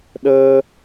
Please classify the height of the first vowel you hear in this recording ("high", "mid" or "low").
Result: mid